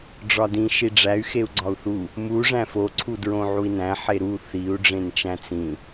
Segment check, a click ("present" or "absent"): present